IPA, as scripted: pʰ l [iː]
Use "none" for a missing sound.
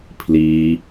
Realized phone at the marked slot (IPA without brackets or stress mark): iː